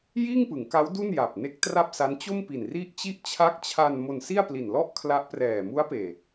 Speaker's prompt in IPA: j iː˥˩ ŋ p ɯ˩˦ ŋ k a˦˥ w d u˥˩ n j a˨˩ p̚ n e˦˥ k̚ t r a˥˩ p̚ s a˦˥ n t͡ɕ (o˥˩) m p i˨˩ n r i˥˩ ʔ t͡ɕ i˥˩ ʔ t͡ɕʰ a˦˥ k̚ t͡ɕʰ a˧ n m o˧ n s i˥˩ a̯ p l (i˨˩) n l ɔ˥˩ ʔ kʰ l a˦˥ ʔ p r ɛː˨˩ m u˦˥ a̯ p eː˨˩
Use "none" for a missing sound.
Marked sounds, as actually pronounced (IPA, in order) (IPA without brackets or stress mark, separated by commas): o˥˩, i˨˩